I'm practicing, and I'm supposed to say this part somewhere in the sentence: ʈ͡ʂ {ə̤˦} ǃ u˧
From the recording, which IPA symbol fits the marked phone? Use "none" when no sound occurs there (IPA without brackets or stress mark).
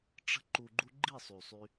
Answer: ə̤˦